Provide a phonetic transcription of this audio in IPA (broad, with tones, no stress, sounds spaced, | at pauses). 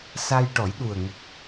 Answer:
s a˧ j ʈ ɔ˨˩˦ j ɗ u˨˩ ə̯ ŋ ə˨˩ k̚